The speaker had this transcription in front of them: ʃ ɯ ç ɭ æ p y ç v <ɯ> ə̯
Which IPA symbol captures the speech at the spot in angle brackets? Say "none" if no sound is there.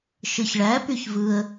ɯ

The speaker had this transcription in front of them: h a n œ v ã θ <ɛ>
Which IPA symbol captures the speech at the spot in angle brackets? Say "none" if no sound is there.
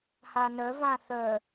œ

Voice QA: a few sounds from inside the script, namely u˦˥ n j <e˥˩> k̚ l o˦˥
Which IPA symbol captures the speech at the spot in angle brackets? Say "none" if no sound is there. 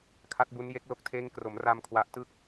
e˦˥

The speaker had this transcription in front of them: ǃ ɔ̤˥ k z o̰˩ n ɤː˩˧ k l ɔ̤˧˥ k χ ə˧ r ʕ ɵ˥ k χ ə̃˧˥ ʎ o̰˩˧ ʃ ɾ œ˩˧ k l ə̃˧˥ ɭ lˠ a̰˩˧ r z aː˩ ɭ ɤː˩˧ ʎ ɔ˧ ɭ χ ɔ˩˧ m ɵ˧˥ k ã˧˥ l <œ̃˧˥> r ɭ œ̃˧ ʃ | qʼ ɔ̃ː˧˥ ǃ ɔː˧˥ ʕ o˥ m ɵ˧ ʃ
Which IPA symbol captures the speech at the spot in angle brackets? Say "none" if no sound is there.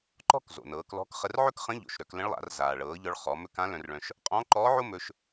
œ̃˧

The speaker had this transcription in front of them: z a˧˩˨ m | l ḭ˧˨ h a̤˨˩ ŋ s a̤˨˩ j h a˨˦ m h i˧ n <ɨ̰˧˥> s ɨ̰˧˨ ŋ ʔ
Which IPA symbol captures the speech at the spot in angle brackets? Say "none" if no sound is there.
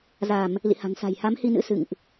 ɨ̰˧˥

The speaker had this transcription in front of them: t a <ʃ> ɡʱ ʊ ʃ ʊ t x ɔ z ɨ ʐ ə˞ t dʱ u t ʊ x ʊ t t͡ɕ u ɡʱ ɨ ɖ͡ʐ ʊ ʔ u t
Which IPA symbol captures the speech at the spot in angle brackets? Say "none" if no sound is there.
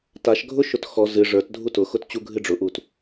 ʃ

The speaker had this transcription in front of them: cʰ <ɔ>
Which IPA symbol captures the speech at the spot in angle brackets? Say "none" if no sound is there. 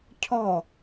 ɔ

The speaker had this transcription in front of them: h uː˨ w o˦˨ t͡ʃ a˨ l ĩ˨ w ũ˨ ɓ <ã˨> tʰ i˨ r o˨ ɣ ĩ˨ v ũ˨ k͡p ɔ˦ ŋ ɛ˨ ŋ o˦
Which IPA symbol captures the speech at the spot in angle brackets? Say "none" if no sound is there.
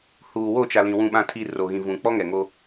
ã˨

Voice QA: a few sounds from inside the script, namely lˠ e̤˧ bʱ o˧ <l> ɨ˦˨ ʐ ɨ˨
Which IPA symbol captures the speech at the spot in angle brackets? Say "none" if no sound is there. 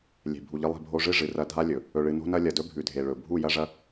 ʐ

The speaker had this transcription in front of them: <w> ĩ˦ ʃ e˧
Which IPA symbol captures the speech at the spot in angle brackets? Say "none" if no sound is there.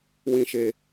w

